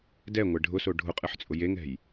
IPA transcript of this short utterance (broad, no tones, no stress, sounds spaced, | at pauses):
d ɛ ŋʷ ɛ ɖʱ ʊ s o ɖʱ ʊ qʼ ɨ ħ t͡sʼ ʊ j e ŋ ɛ̤ j